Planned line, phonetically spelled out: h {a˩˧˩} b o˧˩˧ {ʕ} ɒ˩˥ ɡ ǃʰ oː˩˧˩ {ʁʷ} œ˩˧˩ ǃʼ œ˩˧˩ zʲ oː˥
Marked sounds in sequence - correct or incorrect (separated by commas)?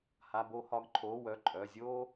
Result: correct, incorrect, incorrect